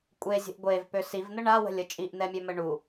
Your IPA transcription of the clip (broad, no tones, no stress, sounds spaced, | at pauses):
kʷʼ e zʲ ə̤ ʔ ɡʷ e v p ø s i v n̪ ə ɳ a w ə̤ lʲ ə t͡ʃʼ i ʔ n̪ ɛ mʲ ø m ə ɳ u